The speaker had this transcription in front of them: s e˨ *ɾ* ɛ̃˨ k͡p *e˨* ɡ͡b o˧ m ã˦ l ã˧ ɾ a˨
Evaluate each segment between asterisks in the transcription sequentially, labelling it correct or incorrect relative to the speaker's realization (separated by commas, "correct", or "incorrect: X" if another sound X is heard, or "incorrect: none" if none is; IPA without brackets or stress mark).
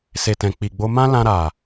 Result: incorrect: t, incorrect: i˨